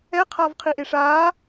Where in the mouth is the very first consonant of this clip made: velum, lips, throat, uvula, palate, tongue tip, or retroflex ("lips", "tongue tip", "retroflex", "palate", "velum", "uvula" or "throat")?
uvula